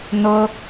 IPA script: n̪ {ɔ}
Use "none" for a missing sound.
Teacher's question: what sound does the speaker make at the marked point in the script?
ʊ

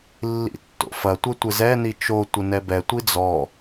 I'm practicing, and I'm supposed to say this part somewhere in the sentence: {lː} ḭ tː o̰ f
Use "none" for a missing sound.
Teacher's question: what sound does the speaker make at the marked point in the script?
lː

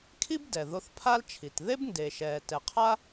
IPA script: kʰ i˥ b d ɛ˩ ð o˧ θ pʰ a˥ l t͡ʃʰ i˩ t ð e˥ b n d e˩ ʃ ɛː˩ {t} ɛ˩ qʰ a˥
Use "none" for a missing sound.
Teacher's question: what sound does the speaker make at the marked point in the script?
t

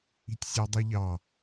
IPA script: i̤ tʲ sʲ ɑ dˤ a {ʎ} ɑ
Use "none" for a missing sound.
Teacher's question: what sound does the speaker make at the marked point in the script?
ʎ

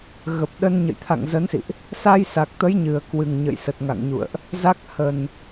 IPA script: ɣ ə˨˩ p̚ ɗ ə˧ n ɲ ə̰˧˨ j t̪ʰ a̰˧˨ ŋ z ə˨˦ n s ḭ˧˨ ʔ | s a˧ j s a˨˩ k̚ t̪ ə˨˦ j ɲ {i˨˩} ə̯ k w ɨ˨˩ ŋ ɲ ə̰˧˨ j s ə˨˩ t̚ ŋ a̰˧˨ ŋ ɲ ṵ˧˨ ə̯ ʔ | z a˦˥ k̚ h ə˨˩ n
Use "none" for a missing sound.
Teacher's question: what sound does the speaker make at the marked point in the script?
ɨ˨˩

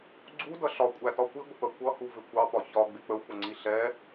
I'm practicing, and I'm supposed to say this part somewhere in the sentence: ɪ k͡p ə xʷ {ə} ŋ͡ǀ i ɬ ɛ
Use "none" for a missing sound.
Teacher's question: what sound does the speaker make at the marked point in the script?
ə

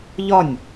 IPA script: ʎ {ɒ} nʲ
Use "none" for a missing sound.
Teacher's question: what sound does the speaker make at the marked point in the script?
ɒ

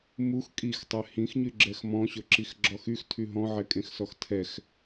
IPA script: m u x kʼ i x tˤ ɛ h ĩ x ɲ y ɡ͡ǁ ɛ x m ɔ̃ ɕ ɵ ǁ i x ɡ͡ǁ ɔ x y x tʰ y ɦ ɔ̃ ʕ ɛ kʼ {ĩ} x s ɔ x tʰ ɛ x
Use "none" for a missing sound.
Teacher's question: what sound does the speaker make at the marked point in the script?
ẽ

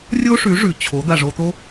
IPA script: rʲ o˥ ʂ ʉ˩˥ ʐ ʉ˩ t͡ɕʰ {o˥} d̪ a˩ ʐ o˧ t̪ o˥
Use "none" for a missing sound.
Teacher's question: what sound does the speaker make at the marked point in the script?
o˩˥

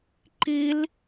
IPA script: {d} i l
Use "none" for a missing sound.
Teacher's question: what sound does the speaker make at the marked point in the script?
ǃ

